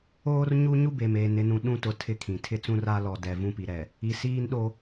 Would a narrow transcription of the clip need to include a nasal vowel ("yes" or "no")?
yes